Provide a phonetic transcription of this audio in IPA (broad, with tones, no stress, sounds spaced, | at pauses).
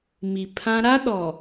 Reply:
m i˨ pʰ ã˦ ɾ a˦ ɗ ɔ˨